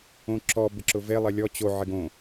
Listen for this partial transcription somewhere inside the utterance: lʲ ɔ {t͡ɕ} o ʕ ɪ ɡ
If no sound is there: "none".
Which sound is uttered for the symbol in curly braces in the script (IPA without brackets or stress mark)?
t͡ɕ